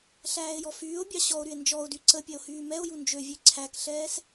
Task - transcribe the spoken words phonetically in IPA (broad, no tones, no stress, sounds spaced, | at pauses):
ɬ æː e̯ j ɔ f yː o̯ bʲ ɑ ɕ ɔ o̯ ɾ y e̯ n d͡ʒ ɔ o̯ d y ǀ ə pʲ ɛ o̯ h yː m ɛ o̯ j u n d͡ʒ ø vʲ ø ǀʰ æ k ɬ ɛː s